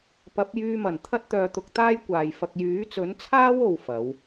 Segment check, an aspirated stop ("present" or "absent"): present